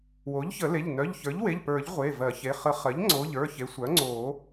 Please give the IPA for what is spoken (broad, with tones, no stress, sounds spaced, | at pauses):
w o˩˥ ʎ ç ə˨˩˦ l e˩˧˩ ʎ n œ˩˧˩ ʎ ç ə˞˩˥ ʎ w e˩˧˩ ʎ p ə˞˨˩˦ ʎ ʁʷ e˩˧˩ v ɜ˨˩˦ ç e˩˧˩ χ ə˨˩˦ χ ɜ˩˥ ʎ ŋ͡ǀ o˩˧˩ ʎ ə˞˩˧˩ ç e˩˥ sʷ œ˩˥ ŋ͡ǀ o˨˩˦